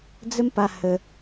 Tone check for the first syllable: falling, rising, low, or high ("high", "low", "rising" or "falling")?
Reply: high